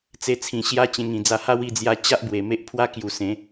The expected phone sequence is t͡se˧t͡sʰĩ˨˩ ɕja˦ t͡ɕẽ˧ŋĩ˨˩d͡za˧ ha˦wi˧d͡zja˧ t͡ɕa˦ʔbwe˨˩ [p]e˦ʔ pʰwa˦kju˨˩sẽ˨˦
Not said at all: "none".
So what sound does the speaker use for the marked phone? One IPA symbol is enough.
m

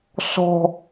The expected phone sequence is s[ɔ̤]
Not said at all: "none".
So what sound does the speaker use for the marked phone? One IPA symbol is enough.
ɔ̤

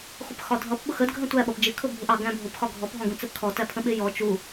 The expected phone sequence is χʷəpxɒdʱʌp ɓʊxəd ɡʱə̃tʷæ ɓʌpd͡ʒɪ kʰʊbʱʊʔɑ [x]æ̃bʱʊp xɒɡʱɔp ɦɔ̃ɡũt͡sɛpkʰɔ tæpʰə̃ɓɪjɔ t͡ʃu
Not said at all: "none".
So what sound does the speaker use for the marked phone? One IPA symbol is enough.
ɡ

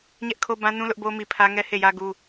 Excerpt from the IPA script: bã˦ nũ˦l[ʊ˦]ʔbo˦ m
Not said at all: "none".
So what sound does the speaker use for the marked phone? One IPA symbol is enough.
ʊ˦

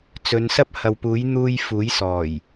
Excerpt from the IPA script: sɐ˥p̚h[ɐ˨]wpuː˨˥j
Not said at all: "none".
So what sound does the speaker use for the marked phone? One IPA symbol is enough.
ɐ˨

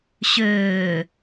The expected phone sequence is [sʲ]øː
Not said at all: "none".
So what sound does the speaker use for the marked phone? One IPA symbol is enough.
ɕ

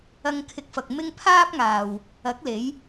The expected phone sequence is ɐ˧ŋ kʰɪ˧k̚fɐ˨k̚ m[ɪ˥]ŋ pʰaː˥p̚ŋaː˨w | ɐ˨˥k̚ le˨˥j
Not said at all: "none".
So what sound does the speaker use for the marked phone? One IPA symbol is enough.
ɪ˥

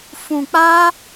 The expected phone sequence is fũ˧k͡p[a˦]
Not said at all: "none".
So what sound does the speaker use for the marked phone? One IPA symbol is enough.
a˦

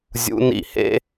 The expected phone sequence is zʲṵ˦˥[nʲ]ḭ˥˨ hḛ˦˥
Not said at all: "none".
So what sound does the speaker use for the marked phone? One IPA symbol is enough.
n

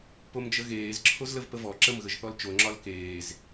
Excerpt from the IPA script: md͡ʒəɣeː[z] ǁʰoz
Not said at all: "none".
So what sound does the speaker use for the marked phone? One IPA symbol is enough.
z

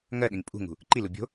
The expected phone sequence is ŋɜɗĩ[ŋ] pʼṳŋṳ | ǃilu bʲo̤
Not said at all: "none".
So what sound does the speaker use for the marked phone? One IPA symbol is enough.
ŋ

